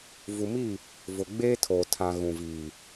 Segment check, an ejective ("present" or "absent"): absent